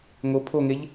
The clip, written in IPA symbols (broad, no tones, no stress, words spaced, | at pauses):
ŋo pʰoŋeʎ